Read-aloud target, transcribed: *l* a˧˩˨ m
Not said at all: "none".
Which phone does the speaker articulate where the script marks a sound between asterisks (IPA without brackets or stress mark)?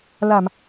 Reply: l